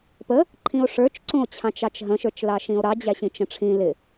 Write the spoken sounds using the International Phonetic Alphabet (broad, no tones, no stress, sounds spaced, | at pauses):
p ə | ǃʰ ĩ o̯ ʂ ə˞ t͡ʃ ǀ ũ o̯ t͡ɕʰ ɑ̃ t͡ʃ ɑ t͡ʃ ɦ ə̃ ʃ ə˞ t͡ʃ l ɑ ʃ ĩ o̯ ɾ ɑ d͡ʑ æ ɕ ĩ t͡ʃ ə̃ ʈ͡ʂʰ ĩ l ɪ